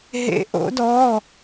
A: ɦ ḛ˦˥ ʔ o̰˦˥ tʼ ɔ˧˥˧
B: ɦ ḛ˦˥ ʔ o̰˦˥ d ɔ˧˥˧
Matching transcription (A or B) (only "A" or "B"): B